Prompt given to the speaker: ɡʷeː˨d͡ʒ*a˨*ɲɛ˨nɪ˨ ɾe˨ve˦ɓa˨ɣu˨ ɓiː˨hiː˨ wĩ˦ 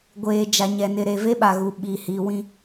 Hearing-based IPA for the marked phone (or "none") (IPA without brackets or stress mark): a˨